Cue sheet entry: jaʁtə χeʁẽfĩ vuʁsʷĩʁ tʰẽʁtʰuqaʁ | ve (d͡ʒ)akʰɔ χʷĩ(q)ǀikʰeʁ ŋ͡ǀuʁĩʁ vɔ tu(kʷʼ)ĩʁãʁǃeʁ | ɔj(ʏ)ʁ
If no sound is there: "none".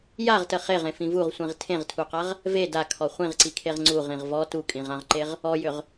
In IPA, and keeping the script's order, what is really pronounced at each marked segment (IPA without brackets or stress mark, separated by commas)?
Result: d, ʁ, kʼ, ʏ